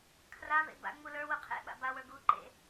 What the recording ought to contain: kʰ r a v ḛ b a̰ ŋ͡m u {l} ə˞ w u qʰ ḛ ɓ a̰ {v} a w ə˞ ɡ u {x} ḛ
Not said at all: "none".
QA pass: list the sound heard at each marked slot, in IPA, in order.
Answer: l, b, ǃ

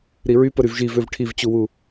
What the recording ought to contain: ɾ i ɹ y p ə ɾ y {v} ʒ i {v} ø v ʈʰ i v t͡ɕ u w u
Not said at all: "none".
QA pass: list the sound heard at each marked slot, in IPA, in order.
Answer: v, v

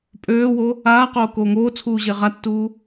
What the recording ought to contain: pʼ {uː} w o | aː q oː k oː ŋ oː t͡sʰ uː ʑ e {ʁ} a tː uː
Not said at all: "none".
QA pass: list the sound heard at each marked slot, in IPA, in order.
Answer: øː, ʁ

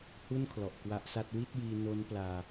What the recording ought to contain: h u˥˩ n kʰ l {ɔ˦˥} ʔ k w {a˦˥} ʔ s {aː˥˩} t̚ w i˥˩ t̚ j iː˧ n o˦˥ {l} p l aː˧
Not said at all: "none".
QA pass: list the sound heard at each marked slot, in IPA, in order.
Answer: ɔ˨˩, a˦˥, a˥˩, n

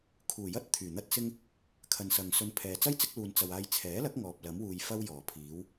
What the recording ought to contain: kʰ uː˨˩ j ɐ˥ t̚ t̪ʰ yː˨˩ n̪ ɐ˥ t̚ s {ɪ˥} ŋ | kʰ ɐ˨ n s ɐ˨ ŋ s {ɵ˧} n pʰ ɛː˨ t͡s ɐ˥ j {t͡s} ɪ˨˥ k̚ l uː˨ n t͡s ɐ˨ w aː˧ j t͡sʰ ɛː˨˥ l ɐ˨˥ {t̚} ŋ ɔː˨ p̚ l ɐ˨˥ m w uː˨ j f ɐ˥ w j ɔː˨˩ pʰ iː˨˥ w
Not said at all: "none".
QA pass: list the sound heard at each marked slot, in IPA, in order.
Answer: ɪ˥, ɵ˧, t͡s, k̚

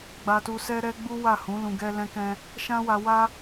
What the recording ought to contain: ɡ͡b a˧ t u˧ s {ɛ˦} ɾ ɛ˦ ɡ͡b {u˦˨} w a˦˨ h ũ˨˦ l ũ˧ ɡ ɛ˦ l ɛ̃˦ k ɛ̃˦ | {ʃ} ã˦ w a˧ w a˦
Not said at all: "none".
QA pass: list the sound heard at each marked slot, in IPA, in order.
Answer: ɛ˦, u˦, ʃ

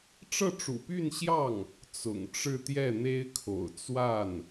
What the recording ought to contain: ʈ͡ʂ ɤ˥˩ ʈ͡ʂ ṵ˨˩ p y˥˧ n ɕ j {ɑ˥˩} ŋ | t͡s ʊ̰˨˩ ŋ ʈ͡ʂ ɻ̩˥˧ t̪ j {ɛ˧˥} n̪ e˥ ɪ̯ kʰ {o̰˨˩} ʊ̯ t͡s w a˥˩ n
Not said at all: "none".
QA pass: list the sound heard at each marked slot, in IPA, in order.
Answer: ɑ˥˩, ɛ˥˩, o̰˨˩

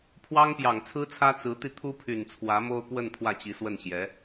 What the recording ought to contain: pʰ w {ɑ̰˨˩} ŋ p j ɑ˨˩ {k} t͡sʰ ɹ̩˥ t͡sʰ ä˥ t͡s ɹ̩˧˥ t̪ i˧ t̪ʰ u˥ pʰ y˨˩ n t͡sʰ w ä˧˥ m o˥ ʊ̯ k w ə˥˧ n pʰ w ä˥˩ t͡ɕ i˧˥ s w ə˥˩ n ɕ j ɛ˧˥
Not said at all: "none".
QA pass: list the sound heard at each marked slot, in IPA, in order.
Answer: ɑ˥, ŋ

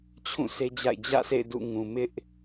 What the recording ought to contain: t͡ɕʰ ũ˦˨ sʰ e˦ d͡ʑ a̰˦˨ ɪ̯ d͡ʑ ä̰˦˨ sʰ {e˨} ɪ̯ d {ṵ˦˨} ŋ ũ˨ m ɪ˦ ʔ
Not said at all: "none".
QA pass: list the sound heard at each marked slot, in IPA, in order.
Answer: ḛ˦˨, ṵ˦˨

